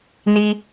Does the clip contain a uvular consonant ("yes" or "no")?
no